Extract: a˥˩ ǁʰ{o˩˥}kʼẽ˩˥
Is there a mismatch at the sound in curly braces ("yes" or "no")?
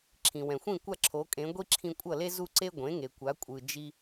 no